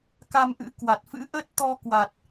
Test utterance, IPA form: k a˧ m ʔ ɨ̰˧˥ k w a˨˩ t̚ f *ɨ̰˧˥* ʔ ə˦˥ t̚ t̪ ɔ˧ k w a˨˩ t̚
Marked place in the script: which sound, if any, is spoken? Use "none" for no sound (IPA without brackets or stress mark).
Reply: ɨ̰˧˥